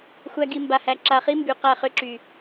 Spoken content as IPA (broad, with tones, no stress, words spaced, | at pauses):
xʷæ˦ ɡi˨ mba˨hæ˨ǁa˨χi˦ mby˨ qæ˦˨χʏ˦ǁy˨